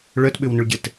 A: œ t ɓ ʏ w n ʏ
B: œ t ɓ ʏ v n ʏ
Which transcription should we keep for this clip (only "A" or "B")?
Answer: A